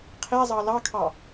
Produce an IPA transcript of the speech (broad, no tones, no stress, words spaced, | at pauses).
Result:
qʰezˤɑ lɑkʰɑ